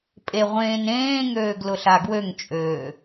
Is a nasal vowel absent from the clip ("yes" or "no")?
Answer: no